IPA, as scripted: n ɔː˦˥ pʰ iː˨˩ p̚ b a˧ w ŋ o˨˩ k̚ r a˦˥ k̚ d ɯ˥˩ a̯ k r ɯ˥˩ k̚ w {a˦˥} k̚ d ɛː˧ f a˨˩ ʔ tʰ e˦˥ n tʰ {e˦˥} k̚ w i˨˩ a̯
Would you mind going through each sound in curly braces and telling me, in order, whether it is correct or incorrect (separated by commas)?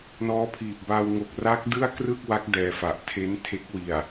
correct, correct